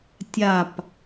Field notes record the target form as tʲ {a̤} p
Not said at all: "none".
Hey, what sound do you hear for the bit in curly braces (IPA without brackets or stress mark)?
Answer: a